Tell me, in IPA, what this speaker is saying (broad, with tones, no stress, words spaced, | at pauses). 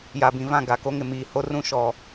ja˨bĩ˨vã˦˨ ɡa˨ko˦ŋɪ˨ miː˨ho˦ rũ˦ʃɔ˨